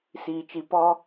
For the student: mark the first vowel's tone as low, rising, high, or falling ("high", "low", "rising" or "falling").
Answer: low